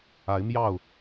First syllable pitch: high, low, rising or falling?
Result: rising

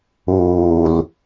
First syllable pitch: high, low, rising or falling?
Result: low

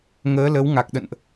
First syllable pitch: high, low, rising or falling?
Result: rising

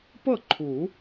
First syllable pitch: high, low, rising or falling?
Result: falling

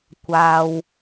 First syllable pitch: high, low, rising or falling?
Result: low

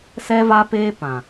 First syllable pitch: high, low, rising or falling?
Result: high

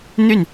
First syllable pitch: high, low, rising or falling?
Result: falling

